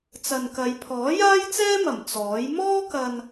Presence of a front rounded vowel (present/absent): absent